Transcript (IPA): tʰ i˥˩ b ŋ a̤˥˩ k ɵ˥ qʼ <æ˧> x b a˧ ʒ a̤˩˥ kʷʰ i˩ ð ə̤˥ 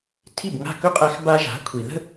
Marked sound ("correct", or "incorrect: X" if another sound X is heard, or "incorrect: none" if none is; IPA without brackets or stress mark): correct